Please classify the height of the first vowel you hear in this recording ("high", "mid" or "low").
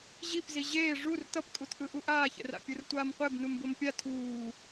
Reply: high